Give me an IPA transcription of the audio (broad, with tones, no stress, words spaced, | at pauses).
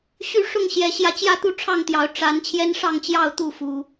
ɕy˦ʂʊ˥˨ŋɕjɛ˨˦ɕjä˧ t͡ɕjä˥˨t̪u˦ʈ͡ʂʰɑ˥˨ŋt̪jɑ˨˦ʊ̯ ʈ͡ʂa˨˦n t͡ɕʰjɛ˦nʂɑ˥˨ŋt͡ɕjɑ˥˨ʊ̯ t̪u˥˨fu˨˦